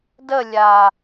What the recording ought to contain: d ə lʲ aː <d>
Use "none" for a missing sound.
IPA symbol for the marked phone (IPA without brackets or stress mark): none